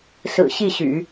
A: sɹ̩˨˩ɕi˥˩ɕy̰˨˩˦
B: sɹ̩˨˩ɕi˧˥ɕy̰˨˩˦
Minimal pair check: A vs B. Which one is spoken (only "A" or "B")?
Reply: A